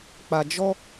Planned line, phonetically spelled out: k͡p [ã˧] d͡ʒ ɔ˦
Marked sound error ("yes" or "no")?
yes